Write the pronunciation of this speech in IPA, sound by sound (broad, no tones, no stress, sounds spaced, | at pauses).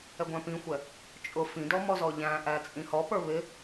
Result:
ɛ ɡʷ æ̃ p ĩ xʷ ɛ | t͡ʃʼ ʊ f ĩ d ɔ m ɔ z ɔ ʎ æ̃ ʔ æ t͡sʼ ĩ h ɔ p ə˞ β ɪ